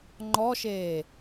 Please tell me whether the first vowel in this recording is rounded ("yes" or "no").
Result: yes